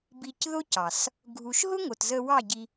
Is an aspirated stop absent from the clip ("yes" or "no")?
yes